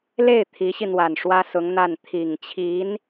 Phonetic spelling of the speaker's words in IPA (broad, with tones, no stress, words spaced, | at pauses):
le˥˩ɪ̯ t̪ʰi˧˥ɕi˧n̪wa˨˩n ʂwä˥sʊ˧˥ŋ n̪a˥˩n t̪ʰi˨˩ŋt͡ɕʰi˧˥n